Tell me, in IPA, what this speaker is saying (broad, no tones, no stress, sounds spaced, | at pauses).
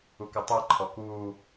u k ɨ tˤ e ǃʰ ɔ k uː